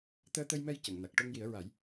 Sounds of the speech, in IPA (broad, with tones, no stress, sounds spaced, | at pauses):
t̪ əː˧ t̪ ə˧ j m ɛ˧ j c ə˨˩˨ ŋ n a˨˩ k̚ ʈ o˧ ŋ j i˨˩˦ ə̯ ɹ a˨˩˦ j